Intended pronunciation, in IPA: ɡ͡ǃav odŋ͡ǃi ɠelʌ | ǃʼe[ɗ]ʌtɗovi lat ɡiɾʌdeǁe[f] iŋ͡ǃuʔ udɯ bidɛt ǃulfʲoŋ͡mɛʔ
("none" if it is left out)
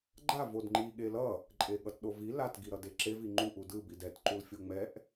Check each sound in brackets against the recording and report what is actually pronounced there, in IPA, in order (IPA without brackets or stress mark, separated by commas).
ɠ, v